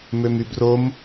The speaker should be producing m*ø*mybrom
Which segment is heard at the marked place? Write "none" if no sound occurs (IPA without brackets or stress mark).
ø